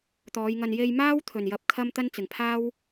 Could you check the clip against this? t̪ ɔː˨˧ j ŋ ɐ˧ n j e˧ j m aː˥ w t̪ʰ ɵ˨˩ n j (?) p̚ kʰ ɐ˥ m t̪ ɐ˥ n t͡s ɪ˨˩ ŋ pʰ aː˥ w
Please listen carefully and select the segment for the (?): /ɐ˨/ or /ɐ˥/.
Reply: ɐ˨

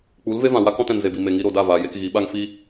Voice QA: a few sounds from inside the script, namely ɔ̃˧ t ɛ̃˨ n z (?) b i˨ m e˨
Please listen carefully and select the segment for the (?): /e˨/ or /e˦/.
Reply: e˨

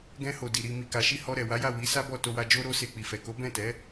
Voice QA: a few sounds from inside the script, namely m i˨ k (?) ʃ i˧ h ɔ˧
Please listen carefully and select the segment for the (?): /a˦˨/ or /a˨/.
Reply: a˨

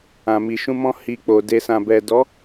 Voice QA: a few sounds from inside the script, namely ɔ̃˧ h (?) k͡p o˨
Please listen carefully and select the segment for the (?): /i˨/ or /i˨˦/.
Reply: i˨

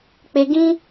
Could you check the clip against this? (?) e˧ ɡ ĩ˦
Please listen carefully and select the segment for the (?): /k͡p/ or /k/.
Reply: k͡p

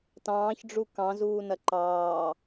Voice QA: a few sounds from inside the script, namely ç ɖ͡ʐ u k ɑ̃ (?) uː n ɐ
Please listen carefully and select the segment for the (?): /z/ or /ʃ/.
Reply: z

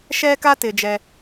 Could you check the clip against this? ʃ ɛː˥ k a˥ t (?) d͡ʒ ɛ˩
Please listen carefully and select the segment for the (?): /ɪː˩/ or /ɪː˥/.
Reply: ɪː˩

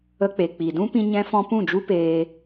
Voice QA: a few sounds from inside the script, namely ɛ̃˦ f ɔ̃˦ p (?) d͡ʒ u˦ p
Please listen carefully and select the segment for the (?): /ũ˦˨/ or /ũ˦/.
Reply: ũ˦˨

